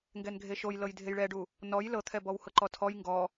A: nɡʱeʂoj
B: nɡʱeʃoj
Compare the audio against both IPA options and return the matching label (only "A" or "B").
B